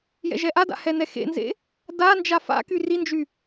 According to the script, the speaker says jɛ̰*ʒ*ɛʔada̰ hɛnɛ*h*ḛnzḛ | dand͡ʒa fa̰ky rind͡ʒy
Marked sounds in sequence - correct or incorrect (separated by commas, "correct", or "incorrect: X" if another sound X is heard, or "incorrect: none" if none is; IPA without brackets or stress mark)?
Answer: correct, incorrect: x